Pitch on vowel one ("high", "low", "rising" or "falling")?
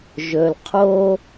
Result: low